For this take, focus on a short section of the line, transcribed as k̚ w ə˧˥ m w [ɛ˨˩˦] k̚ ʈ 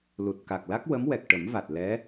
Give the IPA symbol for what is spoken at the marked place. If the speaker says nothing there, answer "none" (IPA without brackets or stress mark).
ɛ˨˩